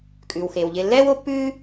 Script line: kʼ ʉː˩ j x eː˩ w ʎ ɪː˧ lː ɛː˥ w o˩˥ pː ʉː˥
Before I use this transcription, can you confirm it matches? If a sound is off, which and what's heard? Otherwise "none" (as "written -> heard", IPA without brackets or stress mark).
j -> w